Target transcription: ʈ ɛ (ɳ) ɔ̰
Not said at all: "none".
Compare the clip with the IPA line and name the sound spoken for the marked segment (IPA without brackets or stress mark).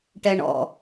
ɳ